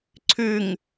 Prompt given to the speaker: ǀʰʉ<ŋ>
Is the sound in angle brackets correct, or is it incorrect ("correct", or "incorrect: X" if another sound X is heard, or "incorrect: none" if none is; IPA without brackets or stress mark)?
correct